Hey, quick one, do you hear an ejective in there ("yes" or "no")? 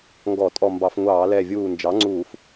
yes